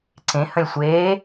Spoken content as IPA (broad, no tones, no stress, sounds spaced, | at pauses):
ǀ ẽ h ə̃ lʲ sʷ eː